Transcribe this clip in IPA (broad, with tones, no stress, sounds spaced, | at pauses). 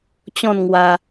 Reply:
t͡ɕ ɔ̃˥˧ n ŋ w a˧